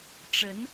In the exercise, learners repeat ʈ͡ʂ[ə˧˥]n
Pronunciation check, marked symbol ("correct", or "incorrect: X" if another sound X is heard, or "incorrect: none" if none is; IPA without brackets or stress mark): correct